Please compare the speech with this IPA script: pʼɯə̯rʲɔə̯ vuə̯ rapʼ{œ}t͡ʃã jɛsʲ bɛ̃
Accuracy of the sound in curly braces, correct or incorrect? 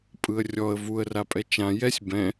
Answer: incorrect